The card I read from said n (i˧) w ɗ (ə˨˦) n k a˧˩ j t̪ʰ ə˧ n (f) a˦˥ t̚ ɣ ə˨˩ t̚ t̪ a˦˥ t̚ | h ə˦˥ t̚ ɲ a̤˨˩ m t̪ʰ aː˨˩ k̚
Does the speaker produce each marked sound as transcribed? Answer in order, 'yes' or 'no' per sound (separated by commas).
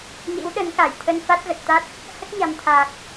no, yes, yes